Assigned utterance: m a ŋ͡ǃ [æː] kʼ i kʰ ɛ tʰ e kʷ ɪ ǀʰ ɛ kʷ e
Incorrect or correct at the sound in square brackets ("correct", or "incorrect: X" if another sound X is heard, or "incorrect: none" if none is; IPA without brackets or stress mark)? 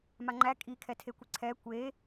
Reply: incorrect: æ